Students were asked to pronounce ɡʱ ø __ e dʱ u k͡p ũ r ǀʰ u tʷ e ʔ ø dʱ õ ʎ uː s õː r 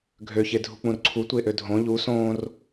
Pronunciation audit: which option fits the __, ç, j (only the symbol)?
ç